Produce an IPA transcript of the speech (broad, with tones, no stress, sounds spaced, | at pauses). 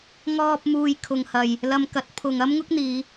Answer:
ŋ ɔː˧ p̚ m uː˨ j kʰ ʊ˨˧ ŋ h ɐ˨ j | l ɐ˧ m k ɐ˨˥ t̚ pʰ ʊ˨ ŋ ɐ˥ m ŋ ʊ˥ k̚ n̪ iː˨˧